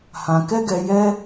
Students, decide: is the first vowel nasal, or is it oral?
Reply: nasal